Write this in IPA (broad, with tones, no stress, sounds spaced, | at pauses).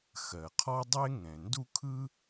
x ɜ˩ qʰ ɔ˥ dˤ e˥ ŋ ɛ̃˩ n d u˥ kʰ ɯ˥